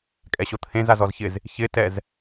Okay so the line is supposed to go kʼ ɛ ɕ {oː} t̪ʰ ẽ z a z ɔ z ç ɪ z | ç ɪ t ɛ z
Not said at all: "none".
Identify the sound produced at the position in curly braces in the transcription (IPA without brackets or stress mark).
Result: o